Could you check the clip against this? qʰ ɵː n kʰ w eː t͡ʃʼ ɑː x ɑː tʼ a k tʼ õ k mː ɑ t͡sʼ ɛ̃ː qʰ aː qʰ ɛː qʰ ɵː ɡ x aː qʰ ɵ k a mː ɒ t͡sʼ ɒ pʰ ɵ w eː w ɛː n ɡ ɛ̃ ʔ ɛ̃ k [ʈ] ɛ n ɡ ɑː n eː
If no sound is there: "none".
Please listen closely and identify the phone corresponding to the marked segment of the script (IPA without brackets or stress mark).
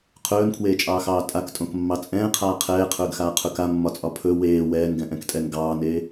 tʼ